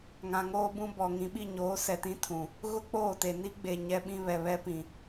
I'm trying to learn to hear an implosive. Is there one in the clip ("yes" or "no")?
yes